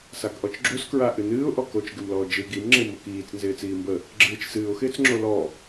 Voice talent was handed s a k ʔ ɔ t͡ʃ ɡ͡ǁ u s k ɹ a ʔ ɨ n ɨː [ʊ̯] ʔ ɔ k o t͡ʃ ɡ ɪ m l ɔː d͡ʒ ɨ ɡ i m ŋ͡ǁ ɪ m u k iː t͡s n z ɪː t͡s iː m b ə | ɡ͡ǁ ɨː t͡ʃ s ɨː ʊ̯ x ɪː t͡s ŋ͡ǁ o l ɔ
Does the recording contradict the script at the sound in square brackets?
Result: no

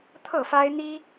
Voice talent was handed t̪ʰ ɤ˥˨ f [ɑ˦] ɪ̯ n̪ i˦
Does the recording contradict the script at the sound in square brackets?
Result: yes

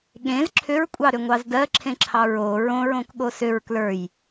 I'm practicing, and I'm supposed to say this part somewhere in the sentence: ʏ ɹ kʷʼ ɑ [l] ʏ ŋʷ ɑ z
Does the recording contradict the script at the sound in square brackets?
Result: yes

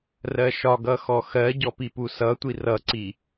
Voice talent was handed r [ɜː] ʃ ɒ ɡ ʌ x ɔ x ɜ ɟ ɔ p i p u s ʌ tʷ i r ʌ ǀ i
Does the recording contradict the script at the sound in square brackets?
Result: yes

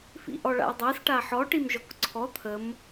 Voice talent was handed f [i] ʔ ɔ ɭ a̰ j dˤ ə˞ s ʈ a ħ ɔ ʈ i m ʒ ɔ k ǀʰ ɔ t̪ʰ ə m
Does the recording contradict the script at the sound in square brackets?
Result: yes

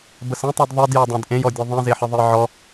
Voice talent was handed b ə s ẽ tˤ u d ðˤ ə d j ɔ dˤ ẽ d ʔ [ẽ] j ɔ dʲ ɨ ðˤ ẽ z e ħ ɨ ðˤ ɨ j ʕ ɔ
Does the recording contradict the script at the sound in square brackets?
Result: no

